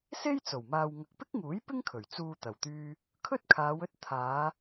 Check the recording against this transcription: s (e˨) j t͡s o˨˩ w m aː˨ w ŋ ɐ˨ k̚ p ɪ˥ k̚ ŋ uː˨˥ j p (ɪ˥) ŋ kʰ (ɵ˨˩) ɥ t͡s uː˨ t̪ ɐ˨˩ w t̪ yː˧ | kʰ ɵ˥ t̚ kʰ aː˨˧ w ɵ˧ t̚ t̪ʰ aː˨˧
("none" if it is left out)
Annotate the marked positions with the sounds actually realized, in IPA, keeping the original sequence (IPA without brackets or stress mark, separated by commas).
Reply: e˥, ɪ˥, ɵ˨˩